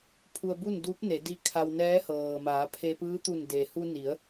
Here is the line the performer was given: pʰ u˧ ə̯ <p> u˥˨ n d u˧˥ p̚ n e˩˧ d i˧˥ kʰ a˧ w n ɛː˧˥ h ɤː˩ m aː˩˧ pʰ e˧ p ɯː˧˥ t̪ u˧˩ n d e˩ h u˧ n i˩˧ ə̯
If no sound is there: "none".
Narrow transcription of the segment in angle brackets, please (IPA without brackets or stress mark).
b